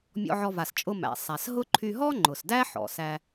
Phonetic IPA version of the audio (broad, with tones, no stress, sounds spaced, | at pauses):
mʲ ɔ̰˧ ʕ ɔ˧ v a˩ s t͡ʃʼ ʊ˧ m æ̰˩ sˤ æ˩ s ɦ ʊ˥ ǃʰ y˧ ɦ ɔ˥ ŋ͡ǃ ʊ˩ s d æ˥ ħ ɔ̰˩ s æ˧